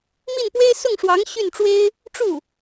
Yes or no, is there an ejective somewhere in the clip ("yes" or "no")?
no